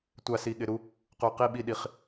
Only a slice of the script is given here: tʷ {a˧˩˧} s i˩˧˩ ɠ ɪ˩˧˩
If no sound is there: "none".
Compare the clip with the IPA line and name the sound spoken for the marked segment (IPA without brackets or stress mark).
a˧˩˧